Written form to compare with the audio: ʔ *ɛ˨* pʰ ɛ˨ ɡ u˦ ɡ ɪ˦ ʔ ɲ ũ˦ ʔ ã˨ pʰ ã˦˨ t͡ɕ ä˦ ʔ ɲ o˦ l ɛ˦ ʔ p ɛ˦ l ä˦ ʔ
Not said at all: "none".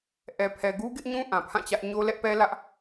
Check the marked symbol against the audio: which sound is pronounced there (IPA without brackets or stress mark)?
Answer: ɛ˨